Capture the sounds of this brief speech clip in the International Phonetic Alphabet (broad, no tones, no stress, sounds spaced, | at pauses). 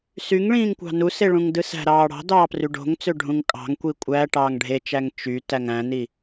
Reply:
s y ŋ ɭ ĩː ŋ kʷ ɑ̤ n u s e ɭ ũ ŋ d ɯ s æ̤ ɾ ɑː ɽ ɑ̤ d ɑː p r y ɖ o̤ ŋ t͡s ø ɖʱ ũ ŋ kʼ ɑ̤ ŋ kʷ i kʷʼ æ ʈ ɑː ŋ ɖʱ e t͡ʃ æ ŋ t͡ʃ y t æ ŋ æ̃ n i